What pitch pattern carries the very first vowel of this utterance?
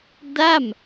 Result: falling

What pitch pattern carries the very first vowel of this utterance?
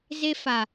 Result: high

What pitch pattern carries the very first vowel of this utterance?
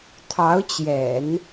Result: rising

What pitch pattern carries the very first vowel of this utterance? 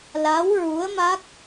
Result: rising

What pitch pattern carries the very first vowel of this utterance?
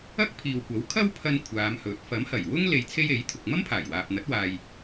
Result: high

